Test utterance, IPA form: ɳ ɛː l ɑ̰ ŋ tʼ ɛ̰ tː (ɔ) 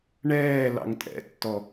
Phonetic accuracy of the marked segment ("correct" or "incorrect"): correct